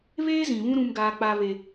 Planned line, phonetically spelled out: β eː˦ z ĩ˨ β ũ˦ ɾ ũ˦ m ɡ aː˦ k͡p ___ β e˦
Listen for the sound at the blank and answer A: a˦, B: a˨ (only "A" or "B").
A